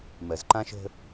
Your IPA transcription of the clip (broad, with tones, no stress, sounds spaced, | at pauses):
m ɜ˨ z ǃ ã˦ ʃ ə̤˦